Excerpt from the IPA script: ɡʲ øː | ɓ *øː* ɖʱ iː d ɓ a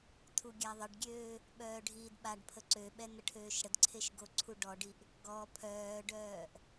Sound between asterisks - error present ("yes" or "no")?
yes